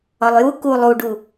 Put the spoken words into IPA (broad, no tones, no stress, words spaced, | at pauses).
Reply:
ɒlˠju ku lˠuɖu